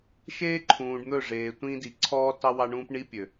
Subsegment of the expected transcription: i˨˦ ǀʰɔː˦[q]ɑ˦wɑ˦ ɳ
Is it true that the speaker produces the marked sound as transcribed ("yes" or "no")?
no